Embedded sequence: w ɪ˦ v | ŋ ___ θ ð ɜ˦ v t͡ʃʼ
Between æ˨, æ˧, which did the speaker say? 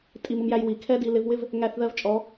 æ˧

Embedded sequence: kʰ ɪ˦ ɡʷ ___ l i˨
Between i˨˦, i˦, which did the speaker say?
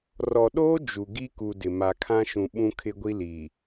i˦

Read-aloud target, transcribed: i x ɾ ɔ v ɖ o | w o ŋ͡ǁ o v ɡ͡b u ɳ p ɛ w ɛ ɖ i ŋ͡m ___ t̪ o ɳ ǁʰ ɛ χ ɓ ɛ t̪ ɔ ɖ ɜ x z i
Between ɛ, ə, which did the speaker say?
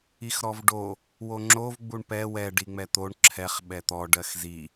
ɛ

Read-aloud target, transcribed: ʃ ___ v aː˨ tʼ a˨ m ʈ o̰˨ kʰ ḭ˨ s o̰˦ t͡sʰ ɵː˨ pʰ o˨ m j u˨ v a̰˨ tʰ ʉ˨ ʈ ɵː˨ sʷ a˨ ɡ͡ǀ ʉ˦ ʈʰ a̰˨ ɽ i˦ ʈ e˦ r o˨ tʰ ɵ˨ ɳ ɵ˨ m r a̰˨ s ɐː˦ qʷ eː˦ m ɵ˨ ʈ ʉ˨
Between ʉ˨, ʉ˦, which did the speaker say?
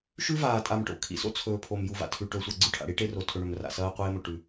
ʉ˦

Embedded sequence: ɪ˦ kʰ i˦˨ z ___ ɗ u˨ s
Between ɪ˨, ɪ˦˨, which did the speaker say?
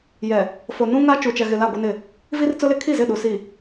ɪ˦˨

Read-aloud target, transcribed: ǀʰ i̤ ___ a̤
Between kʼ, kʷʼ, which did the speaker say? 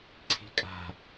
kʼ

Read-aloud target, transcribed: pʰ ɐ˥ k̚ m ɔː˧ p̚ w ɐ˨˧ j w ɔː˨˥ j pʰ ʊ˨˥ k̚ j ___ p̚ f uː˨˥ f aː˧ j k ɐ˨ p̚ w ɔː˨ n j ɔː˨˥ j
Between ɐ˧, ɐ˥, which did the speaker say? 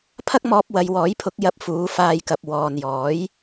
ɐ˧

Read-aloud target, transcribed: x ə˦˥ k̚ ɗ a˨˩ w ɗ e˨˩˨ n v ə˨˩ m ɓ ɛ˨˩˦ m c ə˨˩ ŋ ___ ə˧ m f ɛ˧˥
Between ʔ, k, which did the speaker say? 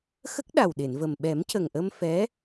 ʔ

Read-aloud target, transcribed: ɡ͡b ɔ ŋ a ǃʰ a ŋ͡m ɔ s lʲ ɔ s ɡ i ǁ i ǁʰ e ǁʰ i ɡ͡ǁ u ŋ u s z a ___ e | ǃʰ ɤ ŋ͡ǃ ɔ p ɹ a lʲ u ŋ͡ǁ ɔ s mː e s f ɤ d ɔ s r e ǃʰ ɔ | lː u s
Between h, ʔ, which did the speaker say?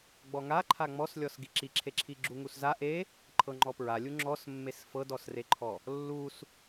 ʔ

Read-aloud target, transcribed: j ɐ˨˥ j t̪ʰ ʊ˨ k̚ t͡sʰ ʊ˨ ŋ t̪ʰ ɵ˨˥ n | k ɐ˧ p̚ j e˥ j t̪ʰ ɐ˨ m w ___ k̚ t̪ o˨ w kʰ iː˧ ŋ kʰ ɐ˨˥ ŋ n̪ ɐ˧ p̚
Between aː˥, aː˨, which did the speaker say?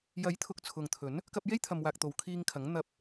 aː˨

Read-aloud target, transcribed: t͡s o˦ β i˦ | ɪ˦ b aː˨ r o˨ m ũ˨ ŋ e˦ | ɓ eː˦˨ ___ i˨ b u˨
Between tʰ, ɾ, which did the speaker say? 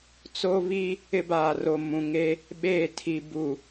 tʰ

